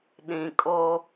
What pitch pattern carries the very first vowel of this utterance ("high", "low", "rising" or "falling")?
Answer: low